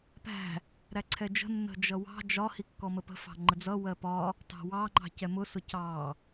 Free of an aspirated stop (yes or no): no